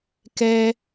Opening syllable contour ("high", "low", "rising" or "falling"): high